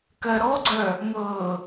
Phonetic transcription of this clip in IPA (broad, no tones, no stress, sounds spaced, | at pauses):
k ɜ ɾ ɔ ɡ͡ǀ œ | ŋ ɤ